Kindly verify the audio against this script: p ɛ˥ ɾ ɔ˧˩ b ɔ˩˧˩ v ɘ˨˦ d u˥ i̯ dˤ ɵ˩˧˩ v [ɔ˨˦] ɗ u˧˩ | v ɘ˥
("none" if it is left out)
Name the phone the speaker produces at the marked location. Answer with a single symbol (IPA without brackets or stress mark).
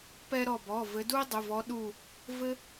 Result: ɔ˨˦